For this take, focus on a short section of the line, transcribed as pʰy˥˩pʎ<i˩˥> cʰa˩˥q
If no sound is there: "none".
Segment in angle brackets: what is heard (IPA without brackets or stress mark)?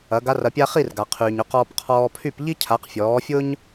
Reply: i˥